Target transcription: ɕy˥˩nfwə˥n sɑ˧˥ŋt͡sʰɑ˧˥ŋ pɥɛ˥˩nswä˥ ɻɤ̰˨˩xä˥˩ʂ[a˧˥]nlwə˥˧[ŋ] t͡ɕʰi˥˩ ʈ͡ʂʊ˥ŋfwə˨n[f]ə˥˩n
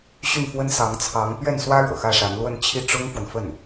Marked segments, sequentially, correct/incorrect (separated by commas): correct, incorrect, correct